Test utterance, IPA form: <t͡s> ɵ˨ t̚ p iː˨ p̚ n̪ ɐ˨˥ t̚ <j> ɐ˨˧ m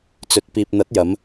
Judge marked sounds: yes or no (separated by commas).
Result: yes, yes